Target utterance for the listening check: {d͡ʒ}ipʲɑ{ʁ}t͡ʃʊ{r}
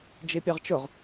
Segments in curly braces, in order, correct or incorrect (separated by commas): correct, correct, incorrect